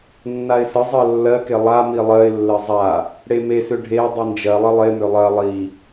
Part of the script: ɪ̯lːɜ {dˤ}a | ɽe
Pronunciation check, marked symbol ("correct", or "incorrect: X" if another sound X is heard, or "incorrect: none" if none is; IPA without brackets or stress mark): incorrect: zˤ